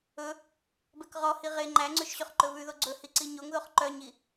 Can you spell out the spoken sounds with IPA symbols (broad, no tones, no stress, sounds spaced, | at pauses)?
ɵ | b ɛ k ʁ ɔ h i ʁ e ŋ͡ǃ æ ŋ͡ǀ ʉ ʃ ɕ ɵ χ ǃ ɵ β ʉ ð o ɡ͡ǀ ɵ h i ǀ i ɲ o ŋ ð o χ ǃ œ ɲ i